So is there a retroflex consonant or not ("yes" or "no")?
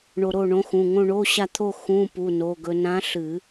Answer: yes